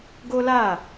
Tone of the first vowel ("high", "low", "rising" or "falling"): high